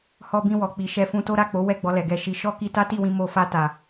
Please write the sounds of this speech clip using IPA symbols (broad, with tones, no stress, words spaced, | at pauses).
hɔ˧bĩ˧wɔ˨k͡pi˨ ʃɛ˧fũ˧to˦ ɾa˦˨k͡po˨˦ wɛ˦˨ɡ͡bɔ˧ lɛ˨ɡɛ˧ʃi˧ ʃɔ˦ ki˧ta˦ti˦˨wĩ˧ mo˧ fa˧ ta˨